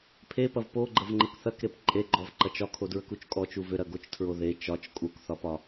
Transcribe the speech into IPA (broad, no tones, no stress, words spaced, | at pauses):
pʰepɐv poɡ͡ǃəvŋ͡ǃək θɐkɾep ǃʼeɡ͡ǃɔvǃɐt͡ʃ ɒkʰodɹəkut͡ʃ kʼɔt͡ʃu vʏɾɐ ɡot͡ʃtʰɹo ðe t͡ʃɒt͡ʃ kʼukθɒpɒ